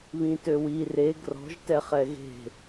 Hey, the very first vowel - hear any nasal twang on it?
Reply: yes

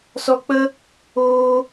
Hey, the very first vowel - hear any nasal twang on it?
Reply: no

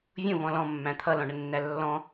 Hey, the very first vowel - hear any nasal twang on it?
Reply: yes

